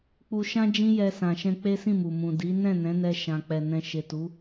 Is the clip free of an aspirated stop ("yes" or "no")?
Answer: yes